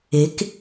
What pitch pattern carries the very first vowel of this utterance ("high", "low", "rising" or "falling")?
rising